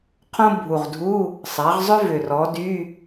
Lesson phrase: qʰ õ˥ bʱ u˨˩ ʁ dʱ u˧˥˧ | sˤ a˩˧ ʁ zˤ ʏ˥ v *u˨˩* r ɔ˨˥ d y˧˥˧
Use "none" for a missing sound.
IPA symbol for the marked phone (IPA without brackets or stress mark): ʏ˨˩